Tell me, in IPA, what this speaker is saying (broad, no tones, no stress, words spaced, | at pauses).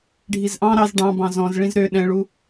ɖʱizʔɑ̃ ɾɑz ɖɑ̃bɑ̃ zɔ̃zɭĩz ɾø ɗɛ̃ɭu